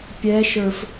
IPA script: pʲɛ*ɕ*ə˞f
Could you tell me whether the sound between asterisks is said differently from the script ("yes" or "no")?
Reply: yes